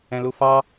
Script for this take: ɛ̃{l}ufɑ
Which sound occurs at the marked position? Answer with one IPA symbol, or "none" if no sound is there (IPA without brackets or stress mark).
l